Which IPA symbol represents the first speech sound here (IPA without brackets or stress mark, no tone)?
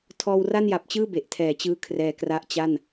tʰ